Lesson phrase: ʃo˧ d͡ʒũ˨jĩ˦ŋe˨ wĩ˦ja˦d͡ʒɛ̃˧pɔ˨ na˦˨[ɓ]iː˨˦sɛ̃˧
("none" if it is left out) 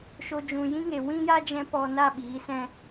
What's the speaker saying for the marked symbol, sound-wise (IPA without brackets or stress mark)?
ɓ